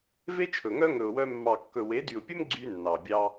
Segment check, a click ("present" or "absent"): present